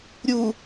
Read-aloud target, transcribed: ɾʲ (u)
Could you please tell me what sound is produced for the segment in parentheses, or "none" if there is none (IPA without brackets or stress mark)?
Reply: u